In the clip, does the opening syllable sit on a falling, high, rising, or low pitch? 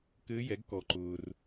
rising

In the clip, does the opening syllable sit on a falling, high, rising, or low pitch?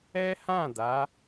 high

